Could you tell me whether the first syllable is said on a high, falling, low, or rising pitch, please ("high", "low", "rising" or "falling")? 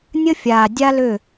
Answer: high